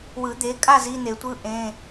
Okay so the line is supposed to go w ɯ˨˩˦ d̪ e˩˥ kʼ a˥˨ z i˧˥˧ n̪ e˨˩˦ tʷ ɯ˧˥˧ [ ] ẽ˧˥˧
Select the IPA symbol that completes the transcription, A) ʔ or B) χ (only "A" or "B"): A